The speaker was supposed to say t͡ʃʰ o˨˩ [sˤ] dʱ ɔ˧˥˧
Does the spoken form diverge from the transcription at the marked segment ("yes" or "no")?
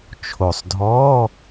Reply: no